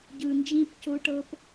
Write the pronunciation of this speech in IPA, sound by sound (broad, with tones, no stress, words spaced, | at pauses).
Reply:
ɟɯ˨nd͡ʒĩ˦pco˦ʈɤ˦p